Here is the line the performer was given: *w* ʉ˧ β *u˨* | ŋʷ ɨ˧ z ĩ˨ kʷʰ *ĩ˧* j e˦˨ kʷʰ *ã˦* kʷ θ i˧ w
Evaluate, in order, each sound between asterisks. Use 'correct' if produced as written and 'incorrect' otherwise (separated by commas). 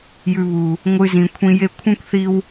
incorrect, correct, correct, correct